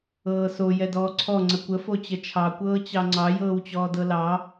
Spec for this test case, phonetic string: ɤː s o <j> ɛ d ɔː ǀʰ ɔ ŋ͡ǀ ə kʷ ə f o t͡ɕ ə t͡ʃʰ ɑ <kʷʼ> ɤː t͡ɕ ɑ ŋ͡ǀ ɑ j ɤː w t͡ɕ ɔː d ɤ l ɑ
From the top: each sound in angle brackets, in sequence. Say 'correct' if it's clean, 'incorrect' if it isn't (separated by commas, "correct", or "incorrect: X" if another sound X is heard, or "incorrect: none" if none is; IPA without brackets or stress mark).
correct, incorrect: kʷ